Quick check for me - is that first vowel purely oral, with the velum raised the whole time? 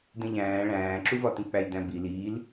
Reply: no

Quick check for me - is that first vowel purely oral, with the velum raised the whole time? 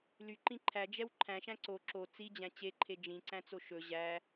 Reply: yes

